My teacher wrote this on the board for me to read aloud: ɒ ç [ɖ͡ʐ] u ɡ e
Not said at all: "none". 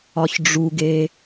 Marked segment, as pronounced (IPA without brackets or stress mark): ɖ͡ʐ